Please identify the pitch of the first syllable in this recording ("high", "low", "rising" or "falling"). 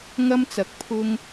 high